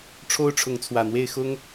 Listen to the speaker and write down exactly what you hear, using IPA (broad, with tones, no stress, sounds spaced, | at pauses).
ʈ͡ʂʰ o˦ ʊ̯ ʈ͡ʂʰ ʊ˨˦ ŋ t͡sʰ w ä˨˩ n̪ w e˥˨ ɪ̯ x ʊ˦ ŋ